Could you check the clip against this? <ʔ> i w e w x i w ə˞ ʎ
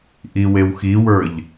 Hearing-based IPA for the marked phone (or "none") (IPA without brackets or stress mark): ʔ